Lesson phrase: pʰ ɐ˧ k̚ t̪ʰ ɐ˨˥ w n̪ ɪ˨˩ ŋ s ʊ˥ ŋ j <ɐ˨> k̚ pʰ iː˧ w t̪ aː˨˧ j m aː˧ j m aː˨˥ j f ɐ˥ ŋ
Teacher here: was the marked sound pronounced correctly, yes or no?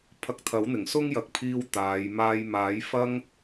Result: yes